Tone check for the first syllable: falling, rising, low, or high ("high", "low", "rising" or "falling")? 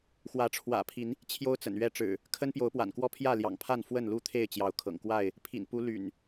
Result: rising